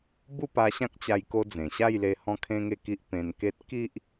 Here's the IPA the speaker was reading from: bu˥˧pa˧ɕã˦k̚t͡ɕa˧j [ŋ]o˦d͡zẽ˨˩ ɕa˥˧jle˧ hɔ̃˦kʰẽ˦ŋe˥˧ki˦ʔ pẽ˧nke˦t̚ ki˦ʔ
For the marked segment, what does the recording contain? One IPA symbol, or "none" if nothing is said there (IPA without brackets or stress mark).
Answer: k